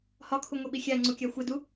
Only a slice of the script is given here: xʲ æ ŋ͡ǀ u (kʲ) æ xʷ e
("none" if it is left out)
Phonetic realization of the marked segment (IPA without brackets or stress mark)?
kʲ